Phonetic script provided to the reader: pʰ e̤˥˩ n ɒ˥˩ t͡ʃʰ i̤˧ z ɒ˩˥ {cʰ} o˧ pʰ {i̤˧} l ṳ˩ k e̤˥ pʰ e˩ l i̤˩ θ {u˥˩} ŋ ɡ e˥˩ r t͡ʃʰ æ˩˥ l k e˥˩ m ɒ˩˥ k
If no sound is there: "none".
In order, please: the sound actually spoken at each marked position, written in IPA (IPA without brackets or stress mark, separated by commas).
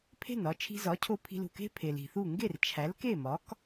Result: cʰ, i̤˧, u˥˩